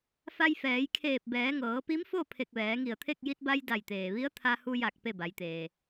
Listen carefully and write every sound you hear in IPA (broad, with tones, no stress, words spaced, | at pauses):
fa˧jfɛː˩˧jkʰeː˧˩p̚ bɛː˩˧ŋɤː˩˧pi˧˥mfo˥˨ pʰe˧˩k̚ʋɛː˩˧ŋi˧˩ə̯t̪ʰe˥˨k̚ ji˧t̚ba˧j da˧˩jt̪eː˩ʋi˧˥ə̯ t̪ʰa˧hu˧ja˧˩k̚ pe˥˨ba˩˧jt̪eː˩